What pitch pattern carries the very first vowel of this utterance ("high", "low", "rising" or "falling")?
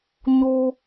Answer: high